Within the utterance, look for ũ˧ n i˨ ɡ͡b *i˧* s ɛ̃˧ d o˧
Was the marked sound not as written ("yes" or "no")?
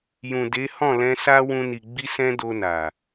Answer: no